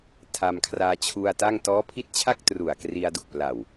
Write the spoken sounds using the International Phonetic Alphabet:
tʰ a˧ m kʰ r aː˧ t͡ɕʰ u˧ a̯ t a˥˩ ŋ t ɔː˦˥ pʰ i˦˥ t̚ t͡ɕʰ a˥˩ k̚ t r u˨˩ a̯ k r i˧ a̯ d u˨˩ k̚ p l aː˨˩ w

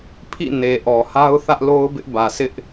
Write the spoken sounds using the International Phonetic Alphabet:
pʰ ḭ˦˨ n e˨ ʔ ɔ˨ h a˦ ʊ̯ θ ä˦ ʔ l o˦ ʊ̯ b ɪ˦ ʔ b ä˨ s ɪ˦ ʔ

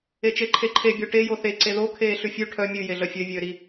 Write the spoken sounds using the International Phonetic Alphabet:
e t͡ʃ e ǃʰ e ǃʰ e bʲ o ʈ e j o θ e ǀ e ð o kʰ eː ɬ ʉ fʲ ʉ ʈʰ œ mʲ ʉ j e ɮ œ fʲ ø vʲ øː ɾ i

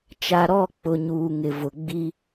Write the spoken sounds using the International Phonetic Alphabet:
t͡ʃ a˨ ɾ ɔ˦˨ k͡p ʊ˨ ɲ uː˨ ŋ ɪ˨ v ʊ˨ ɡ͡b i˦

